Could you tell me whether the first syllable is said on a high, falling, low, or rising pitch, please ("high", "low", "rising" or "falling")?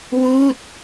falling